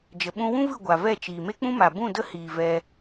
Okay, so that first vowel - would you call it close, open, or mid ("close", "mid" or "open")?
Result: mid